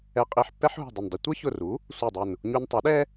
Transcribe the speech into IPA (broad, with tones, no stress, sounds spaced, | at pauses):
ɛ˧ qʼ i˧ ħ pː ɛ˥ ħ ɦ ṳ˧˩ dˤ ə˧˩ n dˤ ʌ˧ tʷ æ˥ ç ʊ˧˩ r u˩˥ | sʷ ʌ˧˩ dˤ ʊ˧˩ n | ɲ u˧ n tˤ ʌ˩˥ ɗ ɛ˥